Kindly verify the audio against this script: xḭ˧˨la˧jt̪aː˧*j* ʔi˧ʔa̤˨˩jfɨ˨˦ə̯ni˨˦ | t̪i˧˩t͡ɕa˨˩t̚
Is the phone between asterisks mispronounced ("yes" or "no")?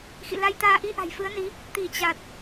yes